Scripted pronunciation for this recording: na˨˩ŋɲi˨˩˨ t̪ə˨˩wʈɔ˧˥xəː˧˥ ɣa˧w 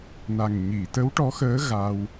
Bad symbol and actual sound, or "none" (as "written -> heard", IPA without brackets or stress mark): ə˨˩ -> ə˧˥